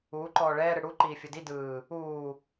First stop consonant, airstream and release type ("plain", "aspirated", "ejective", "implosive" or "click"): click